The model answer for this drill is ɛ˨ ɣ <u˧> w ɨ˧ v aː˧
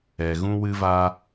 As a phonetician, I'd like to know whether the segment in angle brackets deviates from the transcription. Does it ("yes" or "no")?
yes